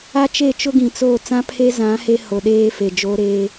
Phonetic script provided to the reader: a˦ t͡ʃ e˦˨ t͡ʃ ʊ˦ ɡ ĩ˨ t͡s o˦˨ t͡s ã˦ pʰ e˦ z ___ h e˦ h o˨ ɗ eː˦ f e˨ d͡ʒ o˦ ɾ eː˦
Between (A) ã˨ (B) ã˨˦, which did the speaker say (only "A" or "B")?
B